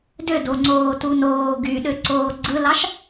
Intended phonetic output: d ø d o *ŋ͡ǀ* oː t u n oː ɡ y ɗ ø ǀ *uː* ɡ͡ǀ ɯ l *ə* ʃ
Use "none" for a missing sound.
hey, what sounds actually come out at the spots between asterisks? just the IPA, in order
ŋ͡ǀ, oː, ɑ

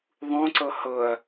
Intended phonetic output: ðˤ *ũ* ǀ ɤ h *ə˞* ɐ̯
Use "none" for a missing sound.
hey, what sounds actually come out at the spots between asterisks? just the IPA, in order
ũ, ɤ

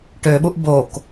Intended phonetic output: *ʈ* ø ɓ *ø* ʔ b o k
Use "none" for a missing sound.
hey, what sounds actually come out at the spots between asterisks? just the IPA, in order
ʈ, u

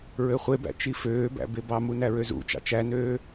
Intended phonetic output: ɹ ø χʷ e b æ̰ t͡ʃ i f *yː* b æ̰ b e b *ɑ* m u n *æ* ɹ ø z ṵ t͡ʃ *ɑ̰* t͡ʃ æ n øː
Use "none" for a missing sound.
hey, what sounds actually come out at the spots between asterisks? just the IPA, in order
øː, ɑ, æ, ɑ̰

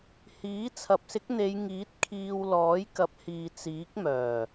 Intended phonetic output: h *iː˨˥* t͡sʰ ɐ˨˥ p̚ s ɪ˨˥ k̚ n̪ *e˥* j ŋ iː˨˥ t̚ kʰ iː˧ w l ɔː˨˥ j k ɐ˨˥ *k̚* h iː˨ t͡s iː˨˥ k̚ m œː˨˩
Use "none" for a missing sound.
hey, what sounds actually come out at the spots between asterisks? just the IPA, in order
iː˨˥, e˨˧, p̚

